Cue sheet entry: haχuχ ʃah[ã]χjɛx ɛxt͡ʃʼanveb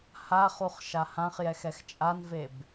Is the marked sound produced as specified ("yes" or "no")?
yes